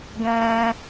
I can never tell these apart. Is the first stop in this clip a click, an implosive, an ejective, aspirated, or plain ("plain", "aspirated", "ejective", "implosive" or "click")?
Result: plain